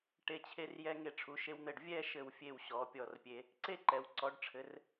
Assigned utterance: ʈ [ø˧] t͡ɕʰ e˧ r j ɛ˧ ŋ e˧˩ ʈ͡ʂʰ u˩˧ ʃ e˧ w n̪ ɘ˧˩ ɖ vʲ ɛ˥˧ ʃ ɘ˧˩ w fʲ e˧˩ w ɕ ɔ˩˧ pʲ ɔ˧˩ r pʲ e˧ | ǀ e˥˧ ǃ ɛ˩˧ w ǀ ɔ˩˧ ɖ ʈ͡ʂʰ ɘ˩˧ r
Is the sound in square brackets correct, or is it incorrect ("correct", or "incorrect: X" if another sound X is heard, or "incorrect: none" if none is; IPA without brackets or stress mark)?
incorrect: e˧